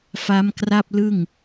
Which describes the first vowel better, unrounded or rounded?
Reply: unrounded